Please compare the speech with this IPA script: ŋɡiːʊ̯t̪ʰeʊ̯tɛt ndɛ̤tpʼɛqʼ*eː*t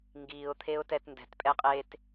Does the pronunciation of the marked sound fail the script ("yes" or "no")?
no